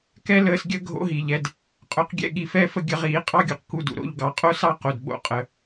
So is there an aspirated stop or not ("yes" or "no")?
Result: no